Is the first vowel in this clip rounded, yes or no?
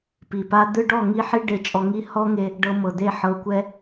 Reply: no